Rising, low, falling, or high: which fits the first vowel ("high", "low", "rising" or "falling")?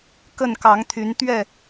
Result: falling